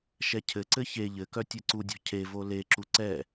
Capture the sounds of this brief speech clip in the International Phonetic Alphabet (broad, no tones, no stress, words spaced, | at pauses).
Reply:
ʃɛcʰɘǀɘ çe ʎɘkœ tʲɘǀudʲɔ̤ cʰevo leǁu ǀɛ